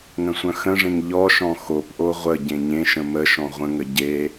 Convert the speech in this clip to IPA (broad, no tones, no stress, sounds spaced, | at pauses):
ŋ ə̃ sʷ œ̃ x ə̃ ʐ ẽ ŋ ʎ ɔ ʃ ɔ̃ x o p ʔ o ʁʷ ə ɟ ẽ ɲ ẽ ʃ ə̃ m ə ʃ ɔ̃ ʁʷ ə̃ ŋ ə ɟ e